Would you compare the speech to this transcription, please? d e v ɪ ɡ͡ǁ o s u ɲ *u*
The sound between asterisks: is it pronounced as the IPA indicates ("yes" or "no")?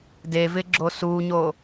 no